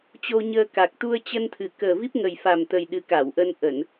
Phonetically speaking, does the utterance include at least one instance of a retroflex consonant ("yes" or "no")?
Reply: no